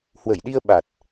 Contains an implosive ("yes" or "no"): yes